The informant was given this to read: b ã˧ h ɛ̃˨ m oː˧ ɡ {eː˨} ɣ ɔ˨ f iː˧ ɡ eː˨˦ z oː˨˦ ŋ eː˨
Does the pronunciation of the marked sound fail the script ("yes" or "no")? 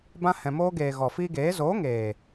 no